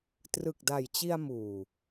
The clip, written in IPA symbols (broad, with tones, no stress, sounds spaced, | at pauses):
t r ɯ˨˩ k̚ d a˨˩ j t͡ɕ i˧ a̯ m uː˨˩